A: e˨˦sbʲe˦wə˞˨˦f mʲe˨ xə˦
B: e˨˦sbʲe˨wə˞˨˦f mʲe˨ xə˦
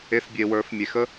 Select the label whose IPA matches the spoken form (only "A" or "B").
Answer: B